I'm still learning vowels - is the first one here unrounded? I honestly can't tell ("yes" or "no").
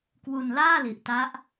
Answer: no